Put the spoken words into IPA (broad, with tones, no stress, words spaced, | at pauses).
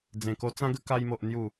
d͡zẽ˨˩ko˧t͡sã˦ɡə˦ ka˧jmo˨ʔ n̪ju˨˩